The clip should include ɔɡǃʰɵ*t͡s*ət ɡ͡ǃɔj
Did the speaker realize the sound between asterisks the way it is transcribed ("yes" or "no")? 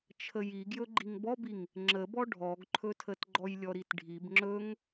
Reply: no